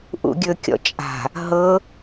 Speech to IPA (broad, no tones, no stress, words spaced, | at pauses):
ʔṵɡʲɵkʲɔ̰t͡ʃʼa̤ | ɦɤ